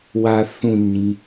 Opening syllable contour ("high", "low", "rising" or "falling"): low